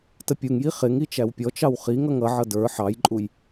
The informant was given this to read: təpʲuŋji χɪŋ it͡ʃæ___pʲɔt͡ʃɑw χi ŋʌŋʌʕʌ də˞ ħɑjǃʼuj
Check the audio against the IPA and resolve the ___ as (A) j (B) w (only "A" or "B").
B